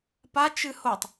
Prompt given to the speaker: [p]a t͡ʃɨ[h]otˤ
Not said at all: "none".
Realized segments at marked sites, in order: p, h

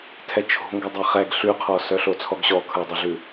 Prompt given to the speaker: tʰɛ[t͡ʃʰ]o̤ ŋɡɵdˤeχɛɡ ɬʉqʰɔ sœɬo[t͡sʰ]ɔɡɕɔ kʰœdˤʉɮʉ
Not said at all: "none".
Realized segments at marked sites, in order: t͡ʃʰ, t͡sʰ

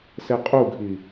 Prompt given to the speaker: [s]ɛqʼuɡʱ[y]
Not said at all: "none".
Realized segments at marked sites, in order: s, i

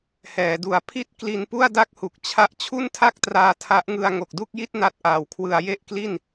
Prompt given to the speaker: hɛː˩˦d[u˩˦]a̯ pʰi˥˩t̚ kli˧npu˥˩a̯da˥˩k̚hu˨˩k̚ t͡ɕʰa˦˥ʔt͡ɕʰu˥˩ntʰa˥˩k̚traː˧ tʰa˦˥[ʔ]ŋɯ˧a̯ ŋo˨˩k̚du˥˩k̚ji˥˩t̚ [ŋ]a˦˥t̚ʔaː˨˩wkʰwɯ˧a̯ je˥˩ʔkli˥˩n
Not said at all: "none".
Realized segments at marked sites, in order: u˩˦, ʔ, n

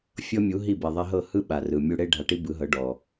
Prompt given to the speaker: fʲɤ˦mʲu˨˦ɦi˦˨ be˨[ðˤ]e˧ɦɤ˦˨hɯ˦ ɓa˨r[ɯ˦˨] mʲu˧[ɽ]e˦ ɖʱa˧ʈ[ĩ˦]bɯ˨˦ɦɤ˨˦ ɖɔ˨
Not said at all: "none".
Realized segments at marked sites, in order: ðˤ, ɯ˨, ɽ, i˦

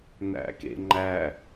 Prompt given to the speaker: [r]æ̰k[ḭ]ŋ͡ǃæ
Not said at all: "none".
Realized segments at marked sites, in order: n, ḛ

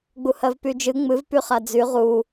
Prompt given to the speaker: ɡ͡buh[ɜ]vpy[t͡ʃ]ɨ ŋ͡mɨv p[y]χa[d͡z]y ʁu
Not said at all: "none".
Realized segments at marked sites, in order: ɜ, d͡ʒ, y, d͡z

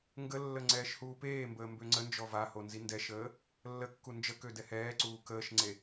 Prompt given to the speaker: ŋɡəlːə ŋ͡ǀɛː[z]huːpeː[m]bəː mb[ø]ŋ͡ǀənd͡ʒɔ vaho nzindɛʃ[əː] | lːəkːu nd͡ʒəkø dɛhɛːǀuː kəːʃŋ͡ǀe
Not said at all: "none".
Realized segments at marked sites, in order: ʃ, m, ø, əː

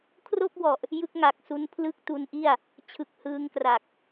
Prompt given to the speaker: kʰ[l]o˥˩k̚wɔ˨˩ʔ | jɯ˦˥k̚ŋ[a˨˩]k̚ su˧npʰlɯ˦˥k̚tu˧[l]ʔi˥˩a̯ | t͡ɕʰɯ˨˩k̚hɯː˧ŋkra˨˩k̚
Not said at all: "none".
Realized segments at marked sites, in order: r, a˨˩, n

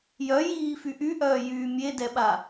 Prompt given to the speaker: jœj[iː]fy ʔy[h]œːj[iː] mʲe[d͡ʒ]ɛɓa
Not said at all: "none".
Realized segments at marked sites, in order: iː, ʔ, yː, d

